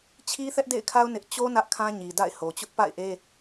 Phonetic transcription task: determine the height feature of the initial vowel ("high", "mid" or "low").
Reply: high